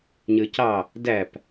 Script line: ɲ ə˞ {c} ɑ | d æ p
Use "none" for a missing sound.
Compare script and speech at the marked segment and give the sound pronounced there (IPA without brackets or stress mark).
c